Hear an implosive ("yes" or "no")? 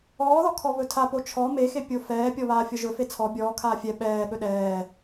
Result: yes